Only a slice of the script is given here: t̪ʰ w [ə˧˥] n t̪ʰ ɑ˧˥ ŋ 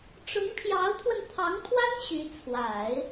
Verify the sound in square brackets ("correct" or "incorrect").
incorrect